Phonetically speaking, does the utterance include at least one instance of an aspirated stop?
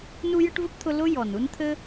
yes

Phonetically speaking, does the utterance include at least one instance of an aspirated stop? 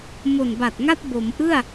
no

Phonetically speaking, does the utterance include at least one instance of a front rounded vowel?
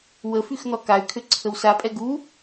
yes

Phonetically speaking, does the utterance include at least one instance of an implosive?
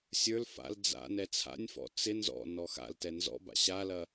no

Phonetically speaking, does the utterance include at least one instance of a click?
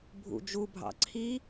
yes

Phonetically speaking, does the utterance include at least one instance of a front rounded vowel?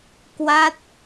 no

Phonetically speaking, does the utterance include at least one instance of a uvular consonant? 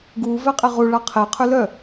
yes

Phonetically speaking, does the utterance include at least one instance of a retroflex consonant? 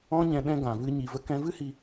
no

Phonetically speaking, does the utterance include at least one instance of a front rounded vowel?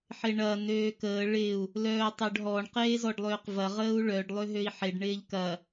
yes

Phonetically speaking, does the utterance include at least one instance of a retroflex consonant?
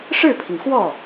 yes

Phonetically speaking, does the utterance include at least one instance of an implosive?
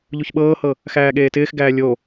yes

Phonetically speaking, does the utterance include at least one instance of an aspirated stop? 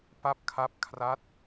yes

